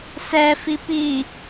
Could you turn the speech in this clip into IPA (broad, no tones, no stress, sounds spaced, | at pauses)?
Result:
s ɛ f i p i